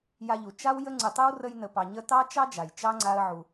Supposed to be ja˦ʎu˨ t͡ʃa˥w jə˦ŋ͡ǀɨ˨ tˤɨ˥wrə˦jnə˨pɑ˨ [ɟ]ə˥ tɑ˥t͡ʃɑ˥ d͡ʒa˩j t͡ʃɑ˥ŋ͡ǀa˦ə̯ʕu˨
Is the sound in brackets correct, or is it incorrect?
incorrect